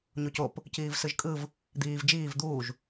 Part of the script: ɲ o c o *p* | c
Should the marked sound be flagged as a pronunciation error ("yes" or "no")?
no